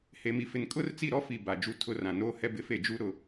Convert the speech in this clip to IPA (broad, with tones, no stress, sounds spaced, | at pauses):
h e˨ m i˨ f ɪ˨ n kʼ ʊ˦ r t͡s i˦˨ ɾ ɔ˦ f i˨ b a˨ d͡ʒ u˦ tʰ ʊ˦ r ã˨ n oː˦ h ɛ˦ b ɪ˦ f e˦˨ d͡ʒ u˦ ɾ ʊ˦˨